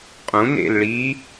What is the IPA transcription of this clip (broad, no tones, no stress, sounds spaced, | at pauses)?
qʼ ũ n ḛ l ɭ i